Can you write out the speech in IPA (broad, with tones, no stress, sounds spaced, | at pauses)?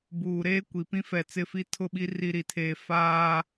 b uː˨ ɾ eː˦ kʷ i˨ p ĩ˦ f ɛ˨ t͡s ɪ˦˨ f i˦ tʰ ʊ˦˨ ɓ i˦ r i˦ ɾ i˨ tʰ eː˦ f aː˦